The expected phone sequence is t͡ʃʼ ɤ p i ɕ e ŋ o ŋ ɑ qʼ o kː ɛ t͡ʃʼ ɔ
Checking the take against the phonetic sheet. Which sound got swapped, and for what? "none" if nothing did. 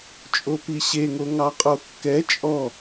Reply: ɤ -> o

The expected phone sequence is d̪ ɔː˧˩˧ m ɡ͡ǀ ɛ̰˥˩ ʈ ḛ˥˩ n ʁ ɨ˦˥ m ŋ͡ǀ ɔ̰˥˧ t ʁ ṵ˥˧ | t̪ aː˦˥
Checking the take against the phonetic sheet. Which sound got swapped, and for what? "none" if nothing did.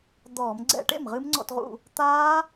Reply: n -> m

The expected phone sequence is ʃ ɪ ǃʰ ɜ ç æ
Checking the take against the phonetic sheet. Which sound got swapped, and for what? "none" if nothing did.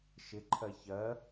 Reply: æ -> ɜ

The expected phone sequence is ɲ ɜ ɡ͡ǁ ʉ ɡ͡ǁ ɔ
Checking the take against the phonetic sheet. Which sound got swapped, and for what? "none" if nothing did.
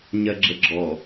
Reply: ʉ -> ə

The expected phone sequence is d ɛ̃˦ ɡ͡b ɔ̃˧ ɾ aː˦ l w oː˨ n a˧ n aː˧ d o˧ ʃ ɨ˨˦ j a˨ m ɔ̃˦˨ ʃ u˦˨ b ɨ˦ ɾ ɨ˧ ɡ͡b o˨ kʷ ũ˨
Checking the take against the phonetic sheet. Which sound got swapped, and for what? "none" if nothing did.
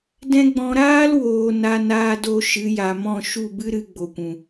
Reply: none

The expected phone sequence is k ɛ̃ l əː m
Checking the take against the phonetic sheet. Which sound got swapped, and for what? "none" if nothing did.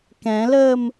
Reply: none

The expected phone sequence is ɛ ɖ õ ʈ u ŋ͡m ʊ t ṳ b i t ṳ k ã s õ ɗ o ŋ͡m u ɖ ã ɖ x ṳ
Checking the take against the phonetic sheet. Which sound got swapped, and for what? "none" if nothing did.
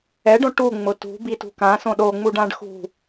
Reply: none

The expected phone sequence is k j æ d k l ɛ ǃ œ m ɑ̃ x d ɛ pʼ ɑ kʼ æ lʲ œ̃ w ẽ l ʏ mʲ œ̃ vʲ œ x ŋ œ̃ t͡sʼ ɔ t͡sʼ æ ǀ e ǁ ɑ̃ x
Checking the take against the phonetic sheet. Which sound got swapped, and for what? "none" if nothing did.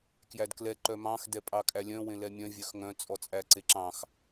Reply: ʏ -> ɛ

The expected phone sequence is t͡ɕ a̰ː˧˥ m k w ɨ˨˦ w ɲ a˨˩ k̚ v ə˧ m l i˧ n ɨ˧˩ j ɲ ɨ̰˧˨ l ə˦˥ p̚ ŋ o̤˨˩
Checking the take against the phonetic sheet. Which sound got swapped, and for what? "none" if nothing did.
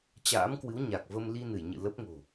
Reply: none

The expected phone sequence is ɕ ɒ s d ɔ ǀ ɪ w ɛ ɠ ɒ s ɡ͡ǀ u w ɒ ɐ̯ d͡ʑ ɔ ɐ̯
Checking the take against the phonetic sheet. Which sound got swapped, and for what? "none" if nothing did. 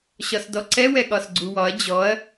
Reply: ɪ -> ɛ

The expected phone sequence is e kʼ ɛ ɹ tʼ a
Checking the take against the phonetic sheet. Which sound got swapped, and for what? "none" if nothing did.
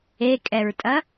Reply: a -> ɐ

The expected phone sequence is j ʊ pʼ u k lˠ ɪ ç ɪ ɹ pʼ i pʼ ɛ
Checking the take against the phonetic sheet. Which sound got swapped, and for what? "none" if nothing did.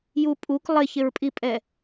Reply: ʊ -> u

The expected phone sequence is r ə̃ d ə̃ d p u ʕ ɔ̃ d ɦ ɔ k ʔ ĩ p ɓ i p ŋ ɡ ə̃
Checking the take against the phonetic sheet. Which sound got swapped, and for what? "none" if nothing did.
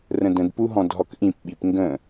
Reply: ʕ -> ɦ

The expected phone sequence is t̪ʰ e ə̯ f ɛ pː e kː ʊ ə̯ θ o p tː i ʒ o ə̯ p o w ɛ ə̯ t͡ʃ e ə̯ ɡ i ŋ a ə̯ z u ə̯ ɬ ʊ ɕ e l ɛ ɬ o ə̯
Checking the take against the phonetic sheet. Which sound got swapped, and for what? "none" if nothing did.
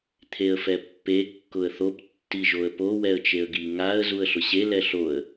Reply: none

